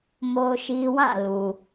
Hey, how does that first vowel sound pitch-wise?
high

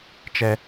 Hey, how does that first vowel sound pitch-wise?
high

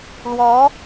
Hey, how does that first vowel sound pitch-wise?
rising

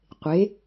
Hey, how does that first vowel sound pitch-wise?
rising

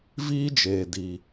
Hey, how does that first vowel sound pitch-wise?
high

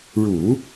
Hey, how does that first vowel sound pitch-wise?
low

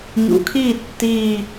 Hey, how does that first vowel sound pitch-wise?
rising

